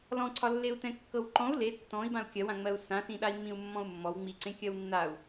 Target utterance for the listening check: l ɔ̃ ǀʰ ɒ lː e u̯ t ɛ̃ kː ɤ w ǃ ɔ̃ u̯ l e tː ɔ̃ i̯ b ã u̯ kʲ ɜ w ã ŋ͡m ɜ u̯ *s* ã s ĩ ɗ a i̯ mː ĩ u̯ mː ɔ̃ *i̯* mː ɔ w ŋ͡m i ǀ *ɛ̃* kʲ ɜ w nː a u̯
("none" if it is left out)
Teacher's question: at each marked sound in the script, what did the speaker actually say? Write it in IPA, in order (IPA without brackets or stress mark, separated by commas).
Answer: s, u̯, ẽ